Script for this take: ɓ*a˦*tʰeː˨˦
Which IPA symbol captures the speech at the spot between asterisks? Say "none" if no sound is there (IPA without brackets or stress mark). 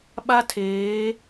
a˦